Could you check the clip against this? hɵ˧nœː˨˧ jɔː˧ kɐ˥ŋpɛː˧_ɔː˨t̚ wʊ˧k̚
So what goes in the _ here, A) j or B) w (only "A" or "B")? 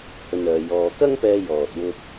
A